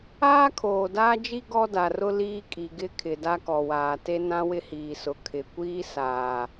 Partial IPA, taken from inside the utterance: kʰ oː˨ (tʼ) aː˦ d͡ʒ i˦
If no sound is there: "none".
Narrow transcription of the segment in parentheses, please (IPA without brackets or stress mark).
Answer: d